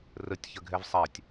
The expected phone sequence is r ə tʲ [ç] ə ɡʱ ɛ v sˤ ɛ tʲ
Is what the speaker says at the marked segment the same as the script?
yes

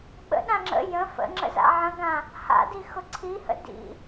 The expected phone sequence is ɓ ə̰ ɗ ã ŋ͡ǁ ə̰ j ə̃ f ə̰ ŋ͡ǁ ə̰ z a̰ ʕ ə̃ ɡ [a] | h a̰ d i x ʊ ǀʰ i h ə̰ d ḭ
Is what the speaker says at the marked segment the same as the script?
no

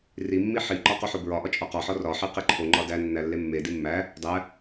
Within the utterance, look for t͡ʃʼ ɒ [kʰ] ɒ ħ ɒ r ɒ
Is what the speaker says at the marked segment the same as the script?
no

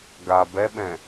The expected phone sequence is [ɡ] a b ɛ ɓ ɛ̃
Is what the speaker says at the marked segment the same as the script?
yes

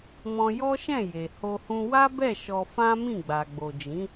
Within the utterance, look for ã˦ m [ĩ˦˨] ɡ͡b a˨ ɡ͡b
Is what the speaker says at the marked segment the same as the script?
yes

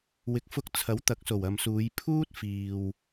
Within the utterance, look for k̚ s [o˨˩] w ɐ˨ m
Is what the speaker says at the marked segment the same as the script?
yes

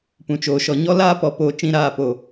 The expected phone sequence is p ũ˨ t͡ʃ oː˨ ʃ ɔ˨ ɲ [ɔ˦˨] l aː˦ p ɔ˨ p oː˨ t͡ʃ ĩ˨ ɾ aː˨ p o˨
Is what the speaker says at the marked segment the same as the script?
no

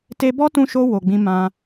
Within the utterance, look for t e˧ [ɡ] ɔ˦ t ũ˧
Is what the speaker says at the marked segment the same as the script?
no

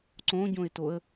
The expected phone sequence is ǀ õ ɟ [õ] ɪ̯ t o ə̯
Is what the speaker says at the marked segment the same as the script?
yes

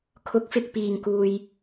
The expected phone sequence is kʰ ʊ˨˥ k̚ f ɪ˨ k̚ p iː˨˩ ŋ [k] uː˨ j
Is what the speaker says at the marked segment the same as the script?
yes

